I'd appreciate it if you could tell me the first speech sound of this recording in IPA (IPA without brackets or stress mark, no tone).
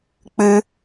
k͡p